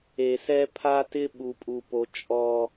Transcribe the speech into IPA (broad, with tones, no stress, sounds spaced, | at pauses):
e˨ s ɛ˦ pʰ a˦ t ɪ˦ ɓ u˨ pʼ u˨ p o˨ t͡ʃʼ ɔ˦